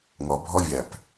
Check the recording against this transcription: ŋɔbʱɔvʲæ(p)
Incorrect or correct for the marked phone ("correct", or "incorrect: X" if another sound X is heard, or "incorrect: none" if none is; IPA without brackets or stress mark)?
correct